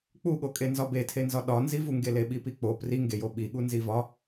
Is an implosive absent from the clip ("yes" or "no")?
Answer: no